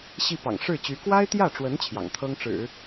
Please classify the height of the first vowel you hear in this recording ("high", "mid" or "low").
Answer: high